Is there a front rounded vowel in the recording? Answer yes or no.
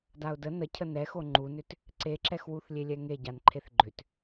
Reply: yes